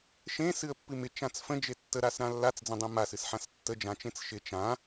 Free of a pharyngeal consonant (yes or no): no